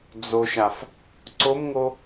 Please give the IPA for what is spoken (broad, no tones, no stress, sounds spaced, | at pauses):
d͡z o ʃ a f | ǀ o m ŋ o